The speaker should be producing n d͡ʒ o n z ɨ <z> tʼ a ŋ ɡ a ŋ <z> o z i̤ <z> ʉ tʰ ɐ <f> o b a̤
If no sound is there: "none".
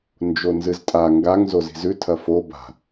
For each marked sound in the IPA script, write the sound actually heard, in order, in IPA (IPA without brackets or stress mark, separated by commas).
z, z, z, f